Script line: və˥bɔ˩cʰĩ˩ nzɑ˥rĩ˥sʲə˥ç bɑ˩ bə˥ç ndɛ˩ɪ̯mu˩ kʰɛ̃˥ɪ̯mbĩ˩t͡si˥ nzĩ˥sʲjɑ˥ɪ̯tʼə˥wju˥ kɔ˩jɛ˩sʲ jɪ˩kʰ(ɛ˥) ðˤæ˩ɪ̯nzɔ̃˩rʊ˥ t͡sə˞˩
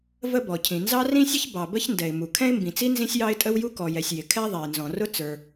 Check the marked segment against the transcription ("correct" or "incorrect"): correct